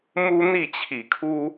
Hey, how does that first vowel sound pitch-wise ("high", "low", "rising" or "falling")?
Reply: high